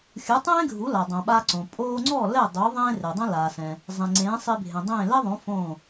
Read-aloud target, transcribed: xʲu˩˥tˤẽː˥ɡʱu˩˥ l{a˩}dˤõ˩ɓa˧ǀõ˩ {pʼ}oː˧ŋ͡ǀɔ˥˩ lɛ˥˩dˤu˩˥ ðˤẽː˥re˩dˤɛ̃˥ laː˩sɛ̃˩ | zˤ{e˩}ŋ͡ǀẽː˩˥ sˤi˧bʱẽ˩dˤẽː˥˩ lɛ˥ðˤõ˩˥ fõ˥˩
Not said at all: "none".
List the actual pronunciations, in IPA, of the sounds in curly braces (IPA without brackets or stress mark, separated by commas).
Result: a˩, pʼ, ẽ˩